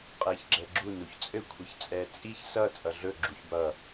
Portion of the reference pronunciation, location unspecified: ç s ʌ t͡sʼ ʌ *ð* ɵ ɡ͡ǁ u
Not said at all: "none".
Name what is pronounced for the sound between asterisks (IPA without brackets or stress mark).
ɮ